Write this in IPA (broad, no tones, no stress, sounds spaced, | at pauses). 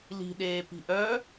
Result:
l i̤ ɗ eː p i̤ ʔ œ